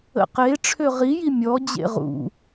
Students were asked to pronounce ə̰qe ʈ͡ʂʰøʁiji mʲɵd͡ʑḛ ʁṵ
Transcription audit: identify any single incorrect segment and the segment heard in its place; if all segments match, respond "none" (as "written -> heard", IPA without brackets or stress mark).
ɵ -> ɔ